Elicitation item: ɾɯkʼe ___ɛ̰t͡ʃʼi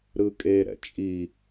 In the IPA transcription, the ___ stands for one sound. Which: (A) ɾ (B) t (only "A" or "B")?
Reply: A